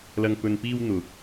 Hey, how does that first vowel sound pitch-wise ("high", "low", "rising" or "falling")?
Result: low